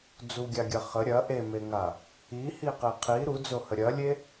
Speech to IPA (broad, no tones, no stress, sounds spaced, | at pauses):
d͡z u ɡʲ a ɡʲ ɐ χ ə ɾʲ ɐ ʔ e m e ŋ a | i h i q e qʰ i ɾ u d͡z o h ə ɾʲ ɐ lʲ e